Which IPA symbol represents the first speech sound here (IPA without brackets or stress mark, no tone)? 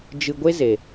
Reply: d͡ʒ